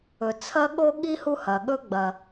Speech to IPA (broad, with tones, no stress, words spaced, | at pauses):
ɵ˩ t͡sʰɐ˥ɠo˥ɠi˥ hu˥hɐ˩ɠɵ˥ ɡ͡bɐ˩